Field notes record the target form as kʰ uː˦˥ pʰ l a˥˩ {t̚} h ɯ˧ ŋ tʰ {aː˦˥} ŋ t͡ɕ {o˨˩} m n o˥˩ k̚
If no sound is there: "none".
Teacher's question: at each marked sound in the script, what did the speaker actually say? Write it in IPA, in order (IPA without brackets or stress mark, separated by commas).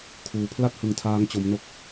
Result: t̚, aː˦˥, o˦˥